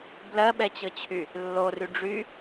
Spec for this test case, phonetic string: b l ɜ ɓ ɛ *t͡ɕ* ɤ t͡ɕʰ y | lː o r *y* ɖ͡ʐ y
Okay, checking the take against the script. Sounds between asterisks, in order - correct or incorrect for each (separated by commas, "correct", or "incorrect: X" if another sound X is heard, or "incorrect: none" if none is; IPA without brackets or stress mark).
correct, correct